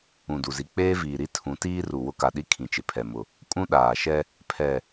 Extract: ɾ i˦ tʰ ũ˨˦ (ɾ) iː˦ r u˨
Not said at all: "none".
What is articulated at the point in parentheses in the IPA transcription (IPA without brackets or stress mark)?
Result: t